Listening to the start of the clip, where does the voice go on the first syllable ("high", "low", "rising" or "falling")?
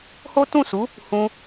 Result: high